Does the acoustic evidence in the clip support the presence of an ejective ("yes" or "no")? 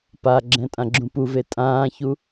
yes